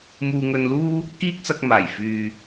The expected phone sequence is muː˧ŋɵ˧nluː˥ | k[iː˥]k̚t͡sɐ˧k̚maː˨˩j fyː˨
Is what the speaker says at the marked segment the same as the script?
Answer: yes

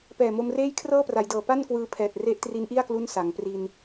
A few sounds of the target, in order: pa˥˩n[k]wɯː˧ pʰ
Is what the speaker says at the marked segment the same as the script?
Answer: yes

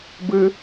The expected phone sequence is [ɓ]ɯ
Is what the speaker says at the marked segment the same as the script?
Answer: no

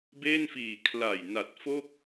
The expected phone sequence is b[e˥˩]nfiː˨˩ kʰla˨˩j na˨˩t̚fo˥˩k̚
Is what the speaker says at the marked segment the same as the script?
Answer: yes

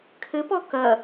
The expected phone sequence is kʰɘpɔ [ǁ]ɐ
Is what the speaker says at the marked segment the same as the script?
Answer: no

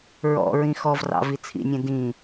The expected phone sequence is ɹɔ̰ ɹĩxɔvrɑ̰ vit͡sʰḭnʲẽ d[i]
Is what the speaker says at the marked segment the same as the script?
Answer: no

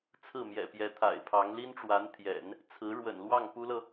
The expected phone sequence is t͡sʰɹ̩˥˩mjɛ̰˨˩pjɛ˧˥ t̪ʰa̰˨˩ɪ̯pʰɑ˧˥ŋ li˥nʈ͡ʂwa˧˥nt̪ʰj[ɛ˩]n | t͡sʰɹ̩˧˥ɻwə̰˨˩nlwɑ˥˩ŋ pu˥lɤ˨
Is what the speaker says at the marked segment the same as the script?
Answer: no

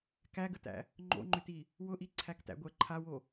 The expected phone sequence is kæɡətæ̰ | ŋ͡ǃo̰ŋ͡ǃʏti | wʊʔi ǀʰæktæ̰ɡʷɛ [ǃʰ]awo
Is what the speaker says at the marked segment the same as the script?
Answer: yes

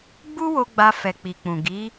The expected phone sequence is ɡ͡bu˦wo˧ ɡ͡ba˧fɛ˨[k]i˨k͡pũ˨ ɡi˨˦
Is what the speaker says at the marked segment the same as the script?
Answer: no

